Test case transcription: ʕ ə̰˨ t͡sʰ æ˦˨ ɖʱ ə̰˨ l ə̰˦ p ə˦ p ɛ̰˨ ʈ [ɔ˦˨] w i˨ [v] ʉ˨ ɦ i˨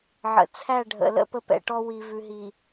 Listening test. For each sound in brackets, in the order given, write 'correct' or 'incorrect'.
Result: incorrect: ɔ˦, correct

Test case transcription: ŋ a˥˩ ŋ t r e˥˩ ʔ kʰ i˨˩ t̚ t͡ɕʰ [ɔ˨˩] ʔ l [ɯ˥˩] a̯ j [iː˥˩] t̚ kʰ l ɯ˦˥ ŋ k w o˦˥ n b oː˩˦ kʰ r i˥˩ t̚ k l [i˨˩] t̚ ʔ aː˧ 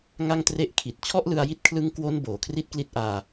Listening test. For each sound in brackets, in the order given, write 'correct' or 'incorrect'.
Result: incorrect: ɔ˥˩, incorrect: ɯ˧, incorrect: i˥˩, incorrect: i˦˥

